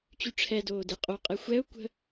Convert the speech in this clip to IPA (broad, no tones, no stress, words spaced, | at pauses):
t͡ɕyʈ͡ʂʰɛdoː deqʼoqʼɛ xʷɛʊ̯ kʷə̤